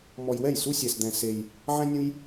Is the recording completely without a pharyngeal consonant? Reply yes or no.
no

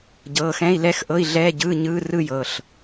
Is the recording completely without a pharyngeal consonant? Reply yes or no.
yes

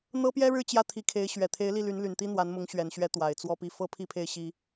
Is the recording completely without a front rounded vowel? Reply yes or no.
no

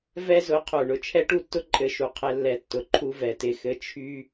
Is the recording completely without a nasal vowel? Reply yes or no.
yes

